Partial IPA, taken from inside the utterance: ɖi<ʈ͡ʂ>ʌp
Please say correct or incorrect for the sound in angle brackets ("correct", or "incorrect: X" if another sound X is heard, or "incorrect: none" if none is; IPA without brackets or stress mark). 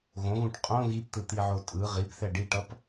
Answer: incorrect: ʈ